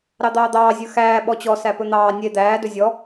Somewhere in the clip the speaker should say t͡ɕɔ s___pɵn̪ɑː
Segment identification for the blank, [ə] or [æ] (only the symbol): æ